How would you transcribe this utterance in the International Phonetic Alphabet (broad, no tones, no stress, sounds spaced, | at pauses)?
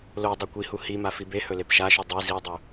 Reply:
l o dˤ o kʷ i h u h i m a f i b e h ɵ l e p ʃ a ʃ u dˤ i z i dˤ u